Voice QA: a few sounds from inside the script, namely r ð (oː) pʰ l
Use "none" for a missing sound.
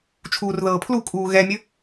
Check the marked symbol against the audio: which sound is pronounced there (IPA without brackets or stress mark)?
ɤː